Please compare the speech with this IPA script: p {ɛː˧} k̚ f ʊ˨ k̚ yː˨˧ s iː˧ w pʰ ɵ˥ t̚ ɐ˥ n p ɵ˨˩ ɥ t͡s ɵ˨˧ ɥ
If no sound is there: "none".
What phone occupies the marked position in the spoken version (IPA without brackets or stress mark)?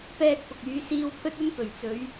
ɛː˧